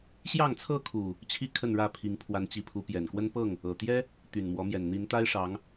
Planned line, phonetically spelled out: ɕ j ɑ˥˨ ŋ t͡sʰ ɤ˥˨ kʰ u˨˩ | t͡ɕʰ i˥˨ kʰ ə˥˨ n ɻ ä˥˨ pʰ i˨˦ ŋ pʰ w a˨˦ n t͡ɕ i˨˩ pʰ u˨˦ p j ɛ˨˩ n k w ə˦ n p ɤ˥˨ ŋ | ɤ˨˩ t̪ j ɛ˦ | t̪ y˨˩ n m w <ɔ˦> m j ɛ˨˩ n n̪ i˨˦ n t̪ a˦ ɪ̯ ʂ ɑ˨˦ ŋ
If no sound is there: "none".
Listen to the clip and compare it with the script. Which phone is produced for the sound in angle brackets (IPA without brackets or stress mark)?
ɔ˨˦